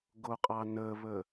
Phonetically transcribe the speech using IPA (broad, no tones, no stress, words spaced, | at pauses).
ɡoqʼɑnəβə